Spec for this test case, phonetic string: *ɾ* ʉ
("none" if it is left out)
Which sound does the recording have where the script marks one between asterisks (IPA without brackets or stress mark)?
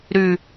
ɾ